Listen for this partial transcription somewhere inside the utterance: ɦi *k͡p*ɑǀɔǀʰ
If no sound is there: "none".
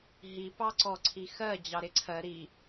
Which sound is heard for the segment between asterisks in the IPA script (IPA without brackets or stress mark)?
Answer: p